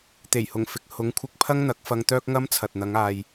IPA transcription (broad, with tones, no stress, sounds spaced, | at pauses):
t̪ e˨˩ j h ʊ˨˩ ŋ f ɪ˨ k̚ h ʊ˨˥ ŋ kʷʰ ɪ˧ k̚ pʰ ɐ˥ ŋ n̪ ɐ˨˥ k̚ f ɐ˧ ŋ t̪ œː˥ k̚ ŋ ɐ˥ m t͡sʰ ɐ˨ t̚ n̪ ɐ˨˧ ŋ aː˨ j